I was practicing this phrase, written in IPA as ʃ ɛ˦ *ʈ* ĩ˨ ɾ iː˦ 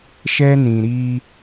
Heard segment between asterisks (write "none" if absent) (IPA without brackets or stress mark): n